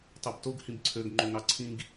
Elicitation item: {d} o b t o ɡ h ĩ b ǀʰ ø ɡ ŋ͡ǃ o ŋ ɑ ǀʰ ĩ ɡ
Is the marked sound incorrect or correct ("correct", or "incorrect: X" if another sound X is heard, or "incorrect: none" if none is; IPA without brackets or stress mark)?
incorrect: tˤ